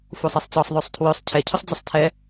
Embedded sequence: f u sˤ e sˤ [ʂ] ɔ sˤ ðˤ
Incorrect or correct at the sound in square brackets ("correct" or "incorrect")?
incorrect